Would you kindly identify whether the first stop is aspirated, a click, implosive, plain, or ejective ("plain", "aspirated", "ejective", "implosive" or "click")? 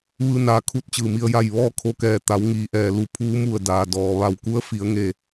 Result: aspirated